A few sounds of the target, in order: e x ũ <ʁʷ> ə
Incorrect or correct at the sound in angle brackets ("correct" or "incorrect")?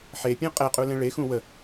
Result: incorrect